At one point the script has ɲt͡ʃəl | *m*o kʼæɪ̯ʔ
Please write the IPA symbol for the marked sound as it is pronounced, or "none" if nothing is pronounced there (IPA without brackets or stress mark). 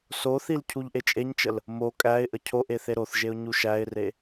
m